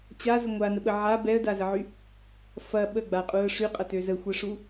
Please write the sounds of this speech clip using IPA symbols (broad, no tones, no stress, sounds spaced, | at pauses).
t͡ɕ a z ə ŋʷ a n ə ɓ ə ʕ a b ɛ ə̯ d a z ə ʕ y | f ɐ ɓ ə ɡ͡b a qʼ u ə̯ ʂ y qʼ ɐ t ø z ə xʷ ɛ ʂ u